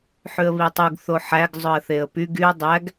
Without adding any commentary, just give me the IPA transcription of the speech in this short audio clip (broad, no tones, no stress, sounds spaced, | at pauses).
ħ ʉ ə̯ β i tˤ u ɡ θ o ħ æ ɡ zˤ ɵ ə̯ θ e ə̯ p y ɡ y ə̯ dˤ æ ɡ